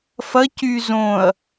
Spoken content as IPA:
f ɐ c y z õ ɐ̯

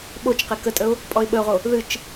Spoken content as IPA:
ɓ o t͡ʃ q e k ə tʼ ə ʊ̯ | pʼ ɔ ɪ̯ ɓ ə ʊ̯ ʁ o | ð ɨ t͡ʃ

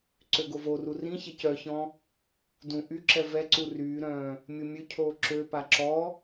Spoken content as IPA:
ǀ ø ɡ o v o r u r ĩ ç ɛ c œ ç ɔ̃ | d ũ ʔ y ǁ ɛ v ɛ ǀ u r yː ɾ œ̃ː | mʲ o mʲ ø cʰ oː ǁ ø p a ǁ ɔ

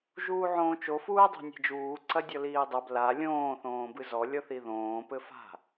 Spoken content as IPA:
ʒ uː ʕ õː t͡ʃ o f uː dˤ ɛ̤ nʲ e̤ d͡ʒ uː ǀ ɐ dʲ ɔ l iː dˤ ɐ b l a lʲ õː θ õː b ɨ z ɔ lʲ ɔ θ i ð õː p ɘ f a̤

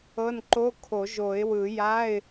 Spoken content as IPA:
ɤ˧˥˧ n ǃ o˧˥˧ kʰ o˨˩˦ ʒ o˨˩˦ ɪ̯ w ɯ˨˩˦ j a˧˥˧ ɪ̯

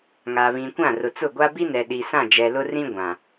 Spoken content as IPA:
ŋ a˨ β ĩ˨ kʷ ã˦˨ r ʊ˨ t͡s ʊ˦˨ ɡʷ a˦ b i˦ n ɛ˨ ɗ i˨ s ã˦˨ d͡ʒ ɛ˨ l ʊ˦ r ĩ˦ ɡʷ ã˨

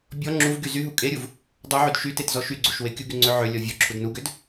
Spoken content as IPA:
bʲ ɔ ŋ͡ǁ u v ɡ y z y ɦ u kʼ e ɾʲ u v | dˤ u ʕ y d ʃ y t e t z ɔ ʃ y ɡ͡ǀ u ʃ w e kʲ u ɡ y ŋ͡ǀ ø ʕ ø lʲ ɔ vʲ ɔ ǁʰ u d n u ɡ ø d

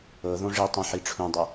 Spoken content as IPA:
ɤ ð õ ʐ i tˤ ũ ħ i ʈ͡ʂʰ ũ dˤ ɤ

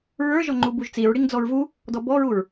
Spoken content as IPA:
ɹ ə˞ ʒ ɔ ŋ͡ǃ u b u ʒ t͡s i ɹ ɽ i ŋ d͡z ɔ ɹ v u | d ɔ b ɔ ɹ u ɹ

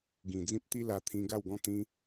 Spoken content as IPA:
ɡ ĩ˨˩ d͡z ĩ˦ p̚ t̪ i˦ l a˧ t̪ʰ ĩ˧ ɡ a˥˧ w ɡ ɔ̃˥˧ t̪ ĩ˧

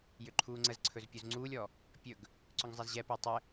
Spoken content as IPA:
j ʏ ǃʰ uː ŋ͡ǀ ə z ǀʰ ɵ z pʲ u z ŋ͡ǀ uː lʲ ɔ | pʲ ɵ ɡ | ǀ ʏ ŋ zˤ ɛ z ʑ ɛ p ə j tˤ ɘ

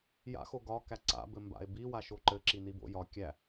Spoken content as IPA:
j a̰ x o ɡ ɒ k æ ǀ a̰ b ɘ m b a̰ e̯ b i w a ʃ o ǃ ɘ ǁ i n i b o̰ j ɒ kʲ æ

